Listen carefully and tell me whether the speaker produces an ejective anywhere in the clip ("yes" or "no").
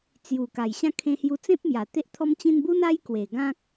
no